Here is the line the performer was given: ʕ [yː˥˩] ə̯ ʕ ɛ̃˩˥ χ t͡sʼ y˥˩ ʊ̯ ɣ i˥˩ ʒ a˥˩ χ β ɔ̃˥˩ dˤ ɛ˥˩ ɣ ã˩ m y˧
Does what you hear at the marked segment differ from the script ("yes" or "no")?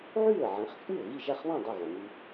no